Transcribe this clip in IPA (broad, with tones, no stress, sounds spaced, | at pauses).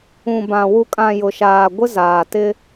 ũ˨ b ã˨ w u˨ kʼ ã˨ j ʊ˨ ʃ aː˨ ɡʷ ɪ˦ z aː˨ t ɪ˦